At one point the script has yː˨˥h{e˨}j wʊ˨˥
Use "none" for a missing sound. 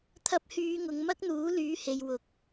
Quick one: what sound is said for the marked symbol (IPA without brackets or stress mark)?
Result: e˨